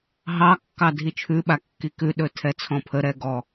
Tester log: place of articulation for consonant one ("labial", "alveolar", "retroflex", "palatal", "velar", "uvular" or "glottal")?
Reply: glottal